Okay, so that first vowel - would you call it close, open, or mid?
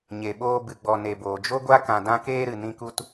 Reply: mid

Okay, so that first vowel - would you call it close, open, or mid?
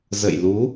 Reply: mid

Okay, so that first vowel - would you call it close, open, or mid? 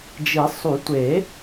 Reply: close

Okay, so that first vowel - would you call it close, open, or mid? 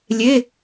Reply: mid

